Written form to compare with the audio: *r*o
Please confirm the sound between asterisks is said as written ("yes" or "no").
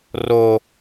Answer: yes